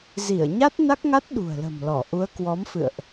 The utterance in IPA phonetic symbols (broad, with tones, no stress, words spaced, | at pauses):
zi˧˩ə̯ɲa˦˥t̚na˦˥k̚ŋa˦˥t̚ ɗṳ˨˩ə̯lə̤˨˩mlɔ˧˩ ʔu˨˦ə̯kwɔ˨˦mfɨ̰˧˨ə̯ʔ